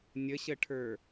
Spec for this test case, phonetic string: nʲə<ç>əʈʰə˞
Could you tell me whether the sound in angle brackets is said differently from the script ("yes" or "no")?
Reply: yes